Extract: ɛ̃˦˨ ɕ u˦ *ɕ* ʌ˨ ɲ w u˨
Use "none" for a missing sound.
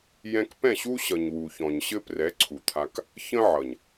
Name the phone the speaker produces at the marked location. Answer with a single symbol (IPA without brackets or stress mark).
ɕ